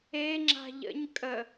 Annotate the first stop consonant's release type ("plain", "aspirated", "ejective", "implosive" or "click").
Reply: click